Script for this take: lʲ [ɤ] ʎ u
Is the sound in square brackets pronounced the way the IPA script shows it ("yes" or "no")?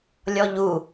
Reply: no